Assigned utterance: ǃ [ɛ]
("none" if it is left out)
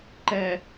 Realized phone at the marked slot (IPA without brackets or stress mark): ɛ